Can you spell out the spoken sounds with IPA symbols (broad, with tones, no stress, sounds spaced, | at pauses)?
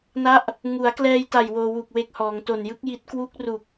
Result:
n a˦˥ ʔ | ŋ u˩˦ a̯ k l ɛː˧ j t a˨˩ j w oː˧ w u˨˩ k̚ w e˦˥ k̚ h ɔː˩˦ ŋ t o˨˩ n j ɯ˦˥ k̚ j i˦˥ t̚ k w u˦˥ k̚ r u˨˩ k̚